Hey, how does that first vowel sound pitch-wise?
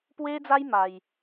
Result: high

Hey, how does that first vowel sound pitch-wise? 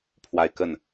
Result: falling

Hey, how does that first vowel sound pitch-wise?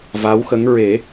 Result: rising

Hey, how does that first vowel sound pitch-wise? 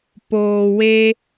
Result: low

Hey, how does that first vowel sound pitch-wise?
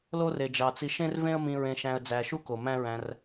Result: high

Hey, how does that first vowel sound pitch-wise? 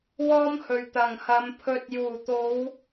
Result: high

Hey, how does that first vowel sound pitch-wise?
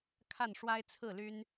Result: falling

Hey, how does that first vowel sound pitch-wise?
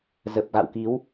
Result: low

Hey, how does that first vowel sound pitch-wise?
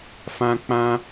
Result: high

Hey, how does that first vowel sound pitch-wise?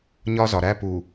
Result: high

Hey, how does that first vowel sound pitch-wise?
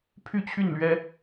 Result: high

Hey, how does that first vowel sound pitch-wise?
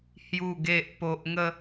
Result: low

